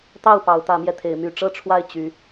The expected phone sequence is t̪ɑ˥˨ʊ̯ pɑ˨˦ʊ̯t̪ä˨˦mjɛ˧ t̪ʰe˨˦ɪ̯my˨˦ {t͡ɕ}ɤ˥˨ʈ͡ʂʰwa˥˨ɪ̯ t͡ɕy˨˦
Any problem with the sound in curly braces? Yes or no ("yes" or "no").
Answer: yes